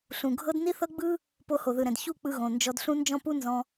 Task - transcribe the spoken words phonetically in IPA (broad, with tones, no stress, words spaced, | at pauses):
ɬũ˨ɡʱɤ˦d ni˦θɤ˦ɡ͡bɯ˦ | po˧ho˨ðɯ˨ɾɛ̃˨d çu˦˨ k͡pɯ˧ɣõ˨ nd͡ʒɔ˧dɬũ˦ nd͡ʒɔ̃˦pu˦ nzɔ̃˧